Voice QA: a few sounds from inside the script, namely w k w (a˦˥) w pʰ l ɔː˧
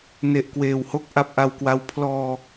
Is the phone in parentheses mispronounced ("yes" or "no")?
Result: no